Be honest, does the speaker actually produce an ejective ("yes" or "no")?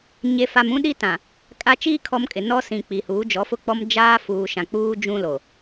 yes